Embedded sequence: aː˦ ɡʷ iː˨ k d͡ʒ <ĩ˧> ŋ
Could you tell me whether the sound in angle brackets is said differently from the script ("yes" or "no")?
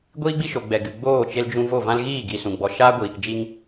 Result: yes